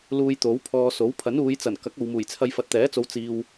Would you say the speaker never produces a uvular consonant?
yes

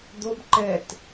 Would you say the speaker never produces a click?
no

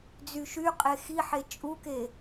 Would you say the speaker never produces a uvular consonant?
no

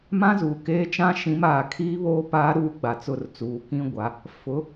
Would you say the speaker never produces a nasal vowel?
no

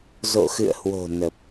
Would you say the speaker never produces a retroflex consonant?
yes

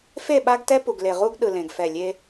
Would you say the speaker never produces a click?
yes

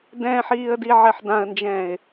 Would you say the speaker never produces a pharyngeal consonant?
no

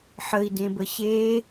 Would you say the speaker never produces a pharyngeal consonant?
no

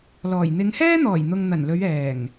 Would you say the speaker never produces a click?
yes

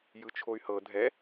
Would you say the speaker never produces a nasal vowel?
yes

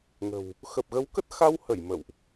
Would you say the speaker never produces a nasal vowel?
yes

